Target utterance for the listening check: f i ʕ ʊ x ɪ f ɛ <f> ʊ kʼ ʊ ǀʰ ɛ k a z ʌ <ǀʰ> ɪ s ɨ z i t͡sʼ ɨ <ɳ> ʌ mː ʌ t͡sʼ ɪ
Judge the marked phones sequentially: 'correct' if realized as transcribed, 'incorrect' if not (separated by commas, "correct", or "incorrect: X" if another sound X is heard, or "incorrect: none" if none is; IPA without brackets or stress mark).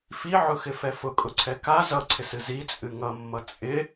correct, correct, incorrect: ŋ